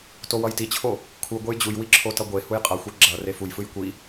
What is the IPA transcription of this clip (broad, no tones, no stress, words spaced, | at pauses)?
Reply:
towʌjtit͡ɕʰo | kʰu ɡʷejd͡ʑujwi ǁʰotʌɡʷehuj qʼʌxʷe ɡ͡ǁʌ refujfɯj kʷi